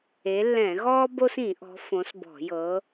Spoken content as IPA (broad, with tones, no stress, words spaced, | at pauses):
e˨˦lːɛ̃˧˩˧ɣɔː˥ bo˥sĩ˧˩˧ʔɔ̤˨˦ fõ˨˦sbɔ̤˧˩˧ jɤ˨˦